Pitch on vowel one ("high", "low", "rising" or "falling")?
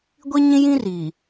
high